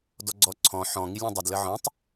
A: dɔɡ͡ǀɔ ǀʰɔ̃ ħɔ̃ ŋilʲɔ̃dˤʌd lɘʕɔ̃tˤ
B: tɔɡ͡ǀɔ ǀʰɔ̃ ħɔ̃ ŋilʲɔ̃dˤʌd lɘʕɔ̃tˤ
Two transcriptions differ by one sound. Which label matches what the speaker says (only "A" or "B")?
A